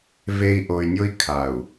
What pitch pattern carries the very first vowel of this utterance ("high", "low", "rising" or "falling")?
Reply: low